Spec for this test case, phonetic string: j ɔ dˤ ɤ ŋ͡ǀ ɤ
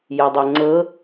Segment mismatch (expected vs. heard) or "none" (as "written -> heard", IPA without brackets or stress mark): ɔ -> ɤ